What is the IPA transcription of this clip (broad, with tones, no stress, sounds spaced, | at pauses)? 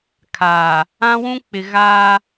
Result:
kʰ aː˨ | ã˦ w ũ˦ k͡p ɪ˨ ɣ aː˦